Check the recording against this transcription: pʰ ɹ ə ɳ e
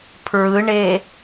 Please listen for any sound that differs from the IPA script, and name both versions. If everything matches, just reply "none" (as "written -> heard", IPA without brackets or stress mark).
ə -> ɯ